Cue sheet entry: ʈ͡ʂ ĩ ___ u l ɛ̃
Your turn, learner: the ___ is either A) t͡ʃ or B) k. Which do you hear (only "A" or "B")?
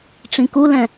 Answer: B